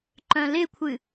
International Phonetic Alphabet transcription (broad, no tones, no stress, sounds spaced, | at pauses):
ǃ œ̃ l ɪ kʷʰ ɨ